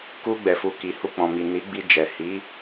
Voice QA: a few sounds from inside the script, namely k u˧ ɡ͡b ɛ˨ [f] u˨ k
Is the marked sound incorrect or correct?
correct